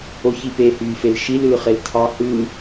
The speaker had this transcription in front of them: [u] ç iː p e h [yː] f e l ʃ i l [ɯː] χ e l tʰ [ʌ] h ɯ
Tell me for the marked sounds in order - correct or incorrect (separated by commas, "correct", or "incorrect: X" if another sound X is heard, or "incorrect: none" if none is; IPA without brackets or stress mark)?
incorrect: o, correct, correct, incorrect: ɑ